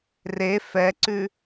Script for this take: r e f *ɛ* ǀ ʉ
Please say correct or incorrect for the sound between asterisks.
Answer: correct